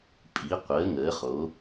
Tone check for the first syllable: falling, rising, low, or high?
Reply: rising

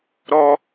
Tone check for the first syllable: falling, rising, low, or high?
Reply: high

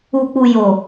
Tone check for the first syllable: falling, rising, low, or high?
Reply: low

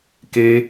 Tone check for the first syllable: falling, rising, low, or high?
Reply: high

